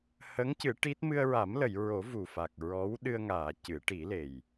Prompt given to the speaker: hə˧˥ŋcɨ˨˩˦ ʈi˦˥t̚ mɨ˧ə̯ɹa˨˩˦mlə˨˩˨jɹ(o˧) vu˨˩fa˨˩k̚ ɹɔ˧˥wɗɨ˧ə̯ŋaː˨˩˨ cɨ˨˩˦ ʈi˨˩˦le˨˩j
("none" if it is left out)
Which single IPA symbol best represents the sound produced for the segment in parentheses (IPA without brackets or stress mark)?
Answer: o˨˩˦